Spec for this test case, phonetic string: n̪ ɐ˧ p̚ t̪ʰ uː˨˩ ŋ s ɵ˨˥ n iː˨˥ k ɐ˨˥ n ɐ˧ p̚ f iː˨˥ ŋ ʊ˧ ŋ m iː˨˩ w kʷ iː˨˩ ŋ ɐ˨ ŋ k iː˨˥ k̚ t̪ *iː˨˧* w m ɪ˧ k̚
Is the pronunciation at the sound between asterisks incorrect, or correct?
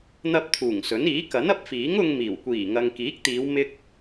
correct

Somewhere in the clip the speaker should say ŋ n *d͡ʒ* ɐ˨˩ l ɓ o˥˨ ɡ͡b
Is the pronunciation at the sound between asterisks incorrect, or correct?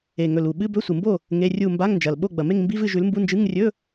correct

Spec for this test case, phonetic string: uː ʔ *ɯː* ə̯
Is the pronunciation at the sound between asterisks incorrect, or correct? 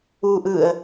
correct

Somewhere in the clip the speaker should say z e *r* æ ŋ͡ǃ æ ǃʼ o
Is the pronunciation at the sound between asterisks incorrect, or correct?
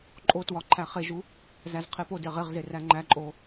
correct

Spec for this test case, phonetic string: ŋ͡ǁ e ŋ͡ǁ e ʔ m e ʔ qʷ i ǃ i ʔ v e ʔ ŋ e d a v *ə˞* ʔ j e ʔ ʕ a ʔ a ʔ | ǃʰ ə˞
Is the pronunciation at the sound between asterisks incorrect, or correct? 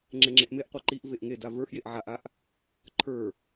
correct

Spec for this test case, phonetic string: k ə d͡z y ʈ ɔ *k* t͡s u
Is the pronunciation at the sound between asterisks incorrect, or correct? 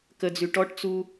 incorrect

